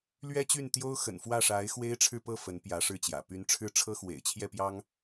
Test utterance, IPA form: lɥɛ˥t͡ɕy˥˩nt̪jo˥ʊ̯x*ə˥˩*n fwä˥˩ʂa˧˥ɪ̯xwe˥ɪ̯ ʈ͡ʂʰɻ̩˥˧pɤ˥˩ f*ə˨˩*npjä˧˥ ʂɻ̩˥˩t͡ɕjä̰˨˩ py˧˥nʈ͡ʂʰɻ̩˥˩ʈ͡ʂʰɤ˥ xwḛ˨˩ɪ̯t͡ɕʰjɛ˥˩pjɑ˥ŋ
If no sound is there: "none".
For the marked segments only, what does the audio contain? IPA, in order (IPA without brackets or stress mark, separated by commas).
ə̰˨˩, ə˧˥